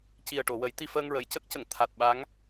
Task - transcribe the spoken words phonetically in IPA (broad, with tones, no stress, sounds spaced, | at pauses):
c i˨˩ ə̯ ʈ o˨˩˨ w ə˨˩˦ j t̪ i˧ f əː˧ ŋ ɹ ə˨˩˨ j c ə˦˥ k̚ c ə˨˩˨ ŋ t̪ʰ a˨˩ t̚ ɓ a˧˥ ŋ